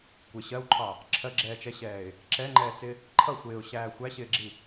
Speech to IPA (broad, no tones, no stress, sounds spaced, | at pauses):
kʷ ɪ ɕ ɜ w ǃʰ ɑ | ǁʰ ɜ ɡ͡ǁ ɛː t͡ʃ ɛ ɕ ɛː ɪ̯ | ǁ ɛ ŋ͡ǃ ɛː t͡s ɪ | ǃʰ ʌ xʷ ɪː ʊ̯ ɕ æː xʷ æ ɕ ɪː ɡ͡ǁ i